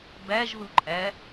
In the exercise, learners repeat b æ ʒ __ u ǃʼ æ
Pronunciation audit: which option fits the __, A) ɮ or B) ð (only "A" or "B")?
B